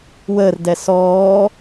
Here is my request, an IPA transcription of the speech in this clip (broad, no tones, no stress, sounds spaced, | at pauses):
w əː r d ɛ s ɔː